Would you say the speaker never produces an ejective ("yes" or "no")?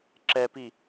yes